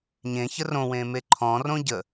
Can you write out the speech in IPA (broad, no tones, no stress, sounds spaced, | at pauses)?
ɲ ẽ ç ə r õ w ẽː m e ǃʰ ɔ̃ r õ ɟ ə